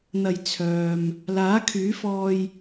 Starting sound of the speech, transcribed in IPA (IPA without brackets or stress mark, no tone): n̪